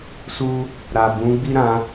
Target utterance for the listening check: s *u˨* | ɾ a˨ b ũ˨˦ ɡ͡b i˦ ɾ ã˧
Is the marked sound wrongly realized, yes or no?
yes